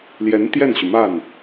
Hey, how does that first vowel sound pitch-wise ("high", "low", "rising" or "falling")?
rising